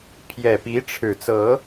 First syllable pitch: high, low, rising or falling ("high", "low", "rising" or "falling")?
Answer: low